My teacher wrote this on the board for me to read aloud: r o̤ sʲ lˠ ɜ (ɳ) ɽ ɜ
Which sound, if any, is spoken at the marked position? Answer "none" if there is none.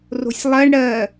ɳ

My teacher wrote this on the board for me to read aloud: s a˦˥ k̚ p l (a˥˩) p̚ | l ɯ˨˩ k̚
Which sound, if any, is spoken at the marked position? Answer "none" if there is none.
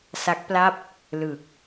a˥˩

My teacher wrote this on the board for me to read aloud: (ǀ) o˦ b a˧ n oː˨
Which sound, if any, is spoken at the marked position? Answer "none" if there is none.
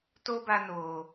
t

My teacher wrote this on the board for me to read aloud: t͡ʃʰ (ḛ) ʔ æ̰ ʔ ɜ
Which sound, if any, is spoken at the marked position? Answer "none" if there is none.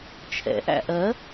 ɛ̰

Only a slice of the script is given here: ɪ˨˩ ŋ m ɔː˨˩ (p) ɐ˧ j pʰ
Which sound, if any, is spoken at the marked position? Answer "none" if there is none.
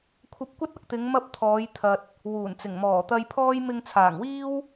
t̪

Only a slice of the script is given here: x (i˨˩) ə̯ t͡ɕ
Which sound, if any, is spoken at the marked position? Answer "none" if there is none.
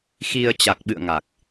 i˧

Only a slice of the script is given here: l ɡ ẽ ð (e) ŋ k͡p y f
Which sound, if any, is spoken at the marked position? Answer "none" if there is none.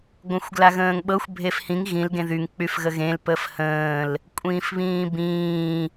y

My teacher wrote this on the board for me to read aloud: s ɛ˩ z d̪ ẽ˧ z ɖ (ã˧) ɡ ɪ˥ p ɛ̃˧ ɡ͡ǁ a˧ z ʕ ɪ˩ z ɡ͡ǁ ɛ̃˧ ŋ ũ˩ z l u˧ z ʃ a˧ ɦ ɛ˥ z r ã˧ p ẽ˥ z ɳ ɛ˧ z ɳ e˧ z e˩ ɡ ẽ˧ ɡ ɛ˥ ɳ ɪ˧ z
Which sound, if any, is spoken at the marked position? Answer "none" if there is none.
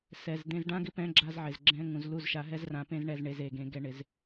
ã˥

